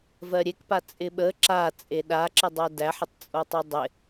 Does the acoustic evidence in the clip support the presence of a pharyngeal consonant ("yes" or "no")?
yes